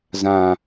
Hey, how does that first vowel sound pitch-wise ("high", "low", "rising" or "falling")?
low